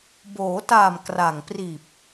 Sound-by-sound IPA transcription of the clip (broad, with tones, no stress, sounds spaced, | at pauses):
b oː˩˦ t aː˨˩ m k r a˨˩ ŋ p r iː˨˩ p̚